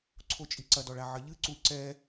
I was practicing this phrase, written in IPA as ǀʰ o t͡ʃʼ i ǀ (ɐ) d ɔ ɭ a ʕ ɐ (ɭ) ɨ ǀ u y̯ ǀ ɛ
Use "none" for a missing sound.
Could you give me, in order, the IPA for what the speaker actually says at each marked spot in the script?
ɐ, ʎ

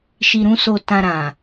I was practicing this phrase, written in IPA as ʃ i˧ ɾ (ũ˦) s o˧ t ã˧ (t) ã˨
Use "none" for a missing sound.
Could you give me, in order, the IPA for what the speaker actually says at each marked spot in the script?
ũ˦, ɾ

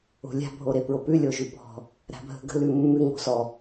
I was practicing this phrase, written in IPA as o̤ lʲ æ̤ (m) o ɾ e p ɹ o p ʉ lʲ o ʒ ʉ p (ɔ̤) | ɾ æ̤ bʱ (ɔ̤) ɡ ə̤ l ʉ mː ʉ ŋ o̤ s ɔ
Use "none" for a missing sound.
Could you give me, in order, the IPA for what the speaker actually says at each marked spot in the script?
bʱ, ɔ̤, ə̤

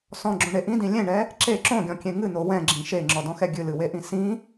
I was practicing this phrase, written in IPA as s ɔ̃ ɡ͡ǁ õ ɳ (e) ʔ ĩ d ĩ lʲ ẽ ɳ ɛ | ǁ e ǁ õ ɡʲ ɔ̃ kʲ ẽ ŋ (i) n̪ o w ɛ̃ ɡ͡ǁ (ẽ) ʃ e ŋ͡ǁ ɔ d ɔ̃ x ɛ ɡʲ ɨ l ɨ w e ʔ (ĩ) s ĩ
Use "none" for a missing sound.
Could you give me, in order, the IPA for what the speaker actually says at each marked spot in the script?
e, ɨ, ĩ, ĩ

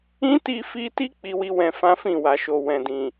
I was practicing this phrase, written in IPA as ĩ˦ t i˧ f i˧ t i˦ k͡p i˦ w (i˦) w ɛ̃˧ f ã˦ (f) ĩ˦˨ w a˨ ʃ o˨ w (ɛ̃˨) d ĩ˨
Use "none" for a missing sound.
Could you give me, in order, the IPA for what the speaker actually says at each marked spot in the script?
i˦, f, ɛ̃˨

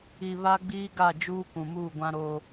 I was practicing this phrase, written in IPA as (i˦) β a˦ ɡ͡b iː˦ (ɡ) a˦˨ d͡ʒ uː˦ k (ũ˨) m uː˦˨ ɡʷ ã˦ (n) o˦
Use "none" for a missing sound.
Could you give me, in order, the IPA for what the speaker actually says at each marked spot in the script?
i˨, ɡ, ũ˨, ɾ

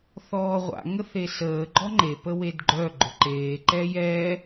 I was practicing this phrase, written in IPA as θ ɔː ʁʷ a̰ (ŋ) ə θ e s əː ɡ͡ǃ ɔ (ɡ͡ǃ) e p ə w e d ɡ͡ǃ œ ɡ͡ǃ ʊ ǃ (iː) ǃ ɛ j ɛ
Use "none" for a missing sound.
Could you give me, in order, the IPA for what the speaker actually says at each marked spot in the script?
ŋ, ŋ͡ǃ, eː

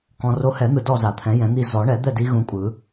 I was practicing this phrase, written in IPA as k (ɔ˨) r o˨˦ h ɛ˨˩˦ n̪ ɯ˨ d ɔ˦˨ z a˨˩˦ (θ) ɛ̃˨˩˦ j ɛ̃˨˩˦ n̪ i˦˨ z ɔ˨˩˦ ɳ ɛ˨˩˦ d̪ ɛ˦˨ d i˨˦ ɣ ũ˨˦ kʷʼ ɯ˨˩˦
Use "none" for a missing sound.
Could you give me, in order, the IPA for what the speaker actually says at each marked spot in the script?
ɔ̃˨, t̪ʰ

